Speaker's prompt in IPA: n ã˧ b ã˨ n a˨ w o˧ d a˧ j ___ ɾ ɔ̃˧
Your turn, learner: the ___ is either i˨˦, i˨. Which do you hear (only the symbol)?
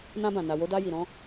i˨